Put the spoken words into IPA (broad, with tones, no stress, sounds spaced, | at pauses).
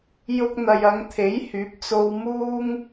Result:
j ʊ˧ k̚ n̪ ɐ˨ j ɐ˨˧ ŋ t̪ʰ e˨˥ j h yː˨˥ p̚ t͡s o˧ w m uː˥ ŋ